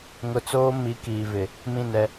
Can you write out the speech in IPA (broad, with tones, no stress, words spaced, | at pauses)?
ŋʊ˨t͡soː˦ mi˨˦kiː˨vɪ˨ | mĩ˦˨nɛ˦